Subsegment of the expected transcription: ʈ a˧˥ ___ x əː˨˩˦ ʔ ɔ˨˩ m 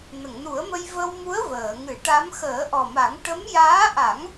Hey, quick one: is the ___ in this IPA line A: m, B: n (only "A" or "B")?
A